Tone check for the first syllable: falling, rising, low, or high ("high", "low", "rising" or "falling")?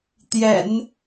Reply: low